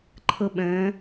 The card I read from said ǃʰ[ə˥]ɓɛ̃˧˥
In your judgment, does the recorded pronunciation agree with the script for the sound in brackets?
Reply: yes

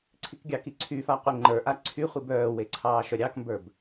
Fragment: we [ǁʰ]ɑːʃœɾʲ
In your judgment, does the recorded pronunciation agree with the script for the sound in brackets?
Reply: no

